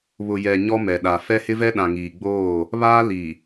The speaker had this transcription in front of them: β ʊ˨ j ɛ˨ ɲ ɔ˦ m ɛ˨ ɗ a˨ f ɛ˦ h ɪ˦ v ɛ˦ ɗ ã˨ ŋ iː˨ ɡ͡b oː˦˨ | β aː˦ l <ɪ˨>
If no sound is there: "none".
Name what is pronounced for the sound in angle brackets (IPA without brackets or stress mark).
i˨